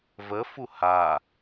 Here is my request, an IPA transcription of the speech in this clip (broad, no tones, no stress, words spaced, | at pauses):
vəfu ha